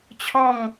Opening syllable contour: falling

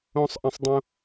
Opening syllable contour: high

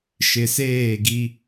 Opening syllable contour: low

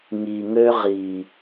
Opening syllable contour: low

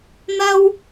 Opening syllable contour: high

